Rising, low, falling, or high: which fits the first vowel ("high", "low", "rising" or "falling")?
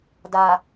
low